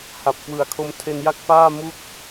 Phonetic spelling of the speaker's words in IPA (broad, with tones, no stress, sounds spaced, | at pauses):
h a˨˩ p̚ k w ɯ˨˩ a̯ kʰ o˧ m tʰ e˧ n j a˥˩ k̚ f aː˥˩ m u˥˩ k̚